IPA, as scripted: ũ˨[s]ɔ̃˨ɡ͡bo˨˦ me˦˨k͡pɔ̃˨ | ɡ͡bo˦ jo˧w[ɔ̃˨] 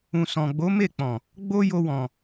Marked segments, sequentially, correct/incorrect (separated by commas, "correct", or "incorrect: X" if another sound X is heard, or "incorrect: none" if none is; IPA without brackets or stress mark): correct, correct